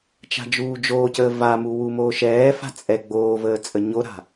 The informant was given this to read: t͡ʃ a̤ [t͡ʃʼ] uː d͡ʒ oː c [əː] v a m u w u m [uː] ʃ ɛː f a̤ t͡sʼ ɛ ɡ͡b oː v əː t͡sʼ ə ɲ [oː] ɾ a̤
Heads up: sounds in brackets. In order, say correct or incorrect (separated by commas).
incorrect, correct, incorrect, incorrect